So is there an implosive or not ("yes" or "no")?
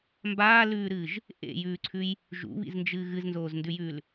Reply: no